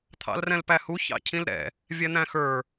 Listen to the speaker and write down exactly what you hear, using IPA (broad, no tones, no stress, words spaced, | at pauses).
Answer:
t̪ʰɑ̰lrɛ̃lpæhu çɑ̰cʰĩlɾɛ̰ | vʲɛn̪æ̃xə˞